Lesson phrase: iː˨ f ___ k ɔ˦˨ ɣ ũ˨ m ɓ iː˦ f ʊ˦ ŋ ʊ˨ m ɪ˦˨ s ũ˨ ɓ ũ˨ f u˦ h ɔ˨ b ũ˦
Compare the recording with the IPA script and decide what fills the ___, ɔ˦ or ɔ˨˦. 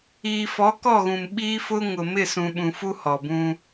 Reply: ɔ˨˦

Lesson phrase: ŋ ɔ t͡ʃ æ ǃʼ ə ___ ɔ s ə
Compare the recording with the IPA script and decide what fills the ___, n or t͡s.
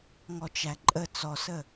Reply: t͡s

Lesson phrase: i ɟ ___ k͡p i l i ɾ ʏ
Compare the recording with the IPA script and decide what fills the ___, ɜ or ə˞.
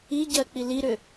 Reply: ɜ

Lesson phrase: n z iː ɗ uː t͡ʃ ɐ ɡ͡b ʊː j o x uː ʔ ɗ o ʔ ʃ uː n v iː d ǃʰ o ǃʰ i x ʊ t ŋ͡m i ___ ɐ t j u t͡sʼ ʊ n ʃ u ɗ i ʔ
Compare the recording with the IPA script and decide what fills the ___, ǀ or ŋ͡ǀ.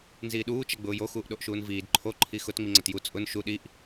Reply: ŋ͡ǀ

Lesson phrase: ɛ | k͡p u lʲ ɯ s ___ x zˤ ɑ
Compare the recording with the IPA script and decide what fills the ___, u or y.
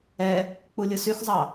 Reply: y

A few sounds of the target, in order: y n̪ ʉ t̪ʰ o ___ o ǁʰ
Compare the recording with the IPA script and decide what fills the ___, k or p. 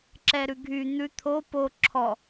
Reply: p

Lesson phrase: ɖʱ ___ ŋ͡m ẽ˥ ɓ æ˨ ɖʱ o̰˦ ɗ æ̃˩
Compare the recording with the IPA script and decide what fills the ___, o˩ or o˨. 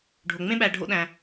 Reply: o˩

